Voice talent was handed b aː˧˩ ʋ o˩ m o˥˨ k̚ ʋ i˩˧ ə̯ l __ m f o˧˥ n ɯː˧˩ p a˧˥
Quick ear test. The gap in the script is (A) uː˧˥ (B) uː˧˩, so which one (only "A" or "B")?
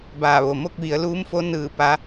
A